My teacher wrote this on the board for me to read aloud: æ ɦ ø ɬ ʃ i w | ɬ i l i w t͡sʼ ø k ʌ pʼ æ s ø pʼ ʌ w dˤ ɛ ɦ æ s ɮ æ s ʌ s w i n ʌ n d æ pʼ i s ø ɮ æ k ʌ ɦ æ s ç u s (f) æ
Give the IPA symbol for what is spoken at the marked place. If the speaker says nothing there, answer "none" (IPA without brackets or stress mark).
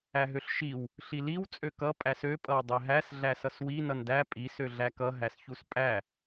pʼ